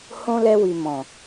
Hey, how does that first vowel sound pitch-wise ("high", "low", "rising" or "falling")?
high